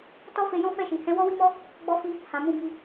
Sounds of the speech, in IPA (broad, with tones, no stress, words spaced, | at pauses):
tɔ˦fe˧jɔ̃˦ fɛ˦˨ʃi˨hɛ̃˨˦ wɔ˦wi˦mɔ˦ | ɡ͡bɔ˦fi˦ | hã˨mũ˧bi˧